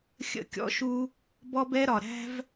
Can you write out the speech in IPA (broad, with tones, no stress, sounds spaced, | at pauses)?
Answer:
xʲ ə̰˦ kʲ ɔ̰˦ ʃ u˦ | b ɔ˦ b ɛ˦ ɾ ɒ˨ ɾ æ̤˦ v